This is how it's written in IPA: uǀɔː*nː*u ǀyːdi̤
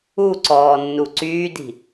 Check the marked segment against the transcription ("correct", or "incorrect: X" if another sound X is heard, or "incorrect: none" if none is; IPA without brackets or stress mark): correct